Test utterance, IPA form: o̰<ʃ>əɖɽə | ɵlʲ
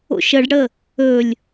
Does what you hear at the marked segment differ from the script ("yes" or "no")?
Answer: no